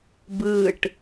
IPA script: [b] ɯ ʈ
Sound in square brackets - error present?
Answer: no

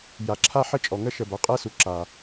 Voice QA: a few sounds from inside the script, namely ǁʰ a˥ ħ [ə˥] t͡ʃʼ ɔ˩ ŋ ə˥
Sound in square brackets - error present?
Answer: no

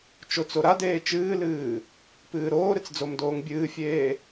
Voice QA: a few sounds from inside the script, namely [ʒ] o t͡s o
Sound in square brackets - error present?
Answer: yes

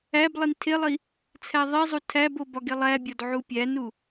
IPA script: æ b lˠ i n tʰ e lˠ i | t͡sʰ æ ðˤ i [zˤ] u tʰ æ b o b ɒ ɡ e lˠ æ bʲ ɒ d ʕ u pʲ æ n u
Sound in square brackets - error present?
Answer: no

